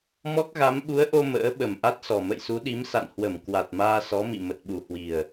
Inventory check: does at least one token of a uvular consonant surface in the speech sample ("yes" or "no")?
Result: no